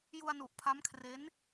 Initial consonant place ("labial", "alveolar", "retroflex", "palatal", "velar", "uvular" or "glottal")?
palatal